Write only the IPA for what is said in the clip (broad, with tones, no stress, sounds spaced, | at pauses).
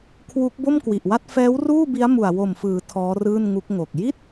kʰ w u˦˥ k̚ b o˥˩ m k w i˨˩ ʔ w a˥˩ t̚ f ɛː˦˥ w r uː˥˩ b i˦˥ a̯ m u˨˩ a̯ w o˨˩ m f ɯː˩˦ tʰ ɔː˦˥ r ɯː˥˩ n ŋ u˦˥ k̚ ŋ o˨˩ k̚ j i˥˩ t̚